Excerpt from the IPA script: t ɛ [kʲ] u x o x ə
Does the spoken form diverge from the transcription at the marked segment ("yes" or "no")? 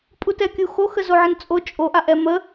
no